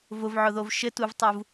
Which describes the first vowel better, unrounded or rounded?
rounded